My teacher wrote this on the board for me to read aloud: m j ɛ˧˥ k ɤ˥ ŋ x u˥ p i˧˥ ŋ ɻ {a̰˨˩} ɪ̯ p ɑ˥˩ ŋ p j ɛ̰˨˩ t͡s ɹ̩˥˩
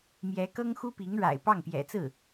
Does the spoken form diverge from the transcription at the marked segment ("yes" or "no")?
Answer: no